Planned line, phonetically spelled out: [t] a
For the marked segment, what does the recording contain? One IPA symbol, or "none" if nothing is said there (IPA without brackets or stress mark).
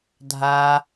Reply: dʱ